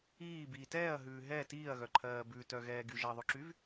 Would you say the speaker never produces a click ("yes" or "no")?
no